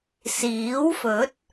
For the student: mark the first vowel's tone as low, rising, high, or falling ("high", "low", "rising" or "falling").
rising